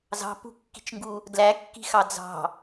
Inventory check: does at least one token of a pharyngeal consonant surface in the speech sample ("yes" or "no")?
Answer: no